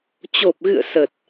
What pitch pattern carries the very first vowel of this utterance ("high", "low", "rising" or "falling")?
low